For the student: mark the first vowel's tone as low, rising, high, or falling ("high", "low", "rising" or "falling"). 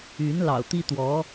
rising